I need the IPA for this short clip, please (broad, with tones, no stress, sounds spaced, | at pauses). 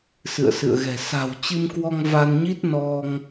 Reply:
s ɨ̰˧˨ ə̯ s ɨ̰˧˨ ə̯ ɣ ɛ̤˨˩ s a̤˨˩ w t͡ɕ ɨ˧ m k w ɔ˧ ŋ v a˧ n ɲ i˦˥ t̚ n ɔ˧ ŋ